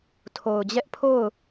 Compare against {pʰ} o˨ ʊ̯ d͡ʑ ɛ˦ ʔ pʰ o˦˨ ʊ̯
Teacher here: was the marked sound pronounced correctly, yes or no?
no